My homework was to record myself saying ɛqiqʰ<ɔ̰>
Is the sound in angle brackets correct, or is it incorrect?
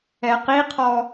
incorrect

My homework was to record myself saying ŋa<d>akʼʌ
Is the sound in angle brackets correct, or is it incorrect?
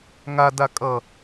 correct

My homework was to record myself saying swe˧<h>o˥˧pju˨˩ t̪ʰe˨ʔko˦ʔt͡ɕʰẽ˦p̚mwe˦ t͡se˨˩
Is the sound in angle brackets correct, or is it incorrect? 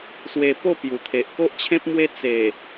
incorrect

